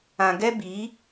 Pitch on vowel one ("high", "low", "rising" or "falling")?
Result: low